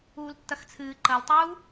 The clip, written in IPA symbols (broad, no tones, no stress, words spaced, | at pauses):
uːltːɐxt͡sʰɨː ǃɐltˤuː